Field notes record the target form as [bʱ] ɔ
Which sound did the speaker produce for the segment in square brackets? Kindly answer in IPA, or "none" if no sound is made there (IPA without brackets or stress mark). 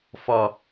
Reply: f